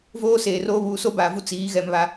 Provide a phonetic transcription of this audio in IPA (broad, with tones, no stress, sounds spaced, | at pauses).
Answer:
v oː˦ s eː˨ r oː˦ β uː˨ s o˦ b aː˨ v u˦ t͡s iː˨˦ ɣ ɛ˦ m β a˦